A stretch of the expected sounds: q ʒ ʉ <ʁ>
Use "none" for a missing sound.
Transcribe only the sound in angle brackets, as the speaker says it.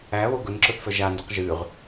ʁ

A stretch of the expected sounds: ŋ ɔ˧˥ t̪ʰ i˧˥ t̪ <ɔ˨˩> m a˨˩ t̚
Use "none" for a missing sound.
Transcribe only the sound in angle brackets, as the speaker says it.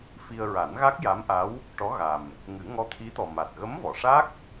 ɔ˨˩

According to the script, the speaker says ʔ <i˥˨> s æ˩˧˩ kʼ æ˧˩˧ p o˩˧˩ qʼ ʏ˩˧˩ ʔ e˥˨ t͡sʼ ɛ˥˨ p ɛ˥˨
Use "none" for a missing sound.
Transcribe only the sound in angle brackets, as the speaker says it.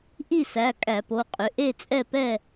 i˥˨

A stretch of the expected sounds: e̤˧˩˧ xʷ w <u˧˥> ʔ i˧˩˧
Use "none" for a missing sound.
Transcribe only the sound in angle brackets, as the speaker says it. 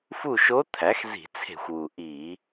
u˩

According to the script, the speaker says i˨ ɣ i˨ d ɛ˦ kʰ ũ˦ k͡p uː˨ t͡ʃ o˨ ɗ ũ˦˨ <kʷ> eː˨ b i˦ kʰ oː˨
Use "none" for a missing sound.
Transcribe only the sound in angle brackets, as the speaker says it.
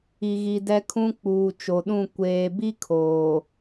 kʷ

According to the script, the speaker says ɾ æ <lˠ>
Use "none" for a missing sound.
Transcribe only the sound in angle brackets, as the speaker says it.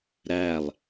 lˠ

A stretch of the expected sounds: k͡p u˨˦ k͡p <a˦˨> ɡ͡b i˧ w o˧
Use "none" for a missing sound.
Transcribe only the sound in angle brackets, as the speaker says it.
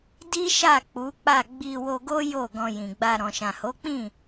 a˦˨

